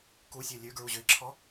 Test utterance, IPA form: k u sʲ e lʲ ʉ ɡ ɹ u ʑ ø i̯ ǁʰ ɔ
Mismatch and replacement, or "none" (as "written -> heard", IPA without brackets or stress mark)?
none